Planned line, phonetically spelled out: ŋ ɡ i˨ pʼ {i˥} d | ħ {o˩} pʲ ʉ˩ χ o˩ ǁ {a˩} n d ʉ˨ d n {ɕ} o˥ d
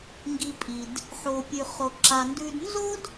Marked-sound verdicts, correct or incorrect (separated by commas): incorrect, correct, correct, incorrect